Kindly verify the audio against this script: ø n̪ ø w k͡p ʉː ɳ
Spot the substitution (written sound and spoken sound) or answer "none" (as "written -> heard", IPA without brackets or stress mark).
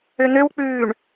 none